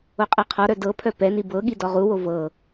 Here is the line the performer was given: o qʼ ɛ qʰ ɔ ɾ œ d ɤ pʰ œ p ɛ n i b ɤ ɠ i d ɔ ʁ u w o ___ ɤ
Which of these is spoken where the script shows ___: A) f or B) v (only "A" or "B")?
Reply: B